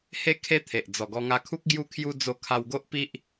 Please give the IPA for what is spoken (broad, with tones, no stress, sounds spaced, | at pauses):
h e˦ kʰ e˦ t̪ʰ e˨ ʔ d͡z ɔ˨˩ ɡ ɔ˧ ŋ a˧ kʰ u˦ k̚ ɡ j u˦ kʰ j u˦ d͡z o˧ kʰ a˧ w ɡ o˦ ʔ p i˦ ʔ